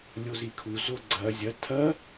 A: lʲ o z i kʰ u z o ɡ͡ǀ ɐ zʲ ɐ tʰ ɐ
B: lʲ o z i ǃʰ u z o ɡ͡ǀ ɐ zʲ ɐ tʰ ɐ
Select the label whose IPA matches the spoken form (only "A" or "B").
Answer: A